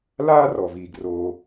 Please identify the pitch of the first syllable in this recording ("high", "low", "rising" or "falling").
high